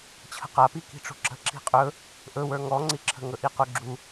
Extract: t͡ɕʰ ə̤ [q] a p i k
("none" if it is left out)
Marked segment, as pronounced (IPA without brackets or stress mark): q